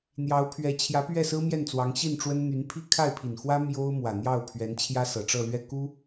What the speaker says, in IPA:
n̪jɑ˧˥ʊ̯pʰɥɛ˧˥t͡ɕʰjä˧˥ pɥɛ˥˩sɹ̩˥mjɛ˥˩nt͡swɑ˧˥ŋ ɕi˥˩nʈ͡ʂwə˥n n̪y˧˥npʰi˥ kʰa˥˩ɪ̯pʰi˨˩nxwä˥ mjo˥ʊ̯mwä˨˩ n̪jɑ˥˩ʊ̯ pʰɥɛ˧˥n t͡ɕʰjä˥sɤ˨˩ʈ͡ʂɤ˥˧ lɥɛ˥˩ku˥

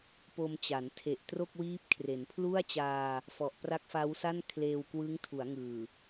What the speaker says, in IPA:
po˧mt͡ɕa˩˦n tʰe˨˩ʔtro˥˩k̚wiː˦˥p̚ kʰre˩˦npʰlu˥˩a̯t͡ɕaː˧ | fɔ˨˩ʔpra˦˥k̚ fa˦˥w sa˥˩n kʰleː˧wkwɯ˦˥ŋtʰu˩˦a̯ŋɯː˨˩

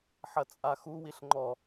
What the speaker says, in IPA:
ħɐt͡sʼaxu wiɬŋ͡ǃɔ

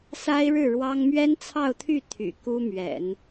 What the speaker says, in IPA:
sa˥ɪ̯ɻɻ̩˥˩ɻwɑ˥ŋ mɥɛ˥nt͡sʰɑ˥˧ʊ̯t̪ʰy˥˩ t̪ʰy̰˨˩ku˥mɥɛ̰˨˩˦n

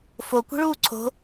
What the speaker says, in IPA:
fokʷi̤ɭuː ǀʰo̤

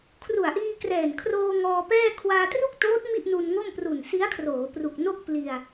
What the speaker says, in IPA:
kʰru˨˩a̯ʔiː˧krɛː˨˩n kʰroː˧ ŋɔː˧pɛː˥˩ kʰwaː˧tru˥˩k̚toː˦˥t̚ mi˥˩ʔnu˧nŋo˥˩m pru˨˩nsi˦˥a̯kʰroː˩˦ pru˨˩k̚no˥˩k̚ pli˧a̯

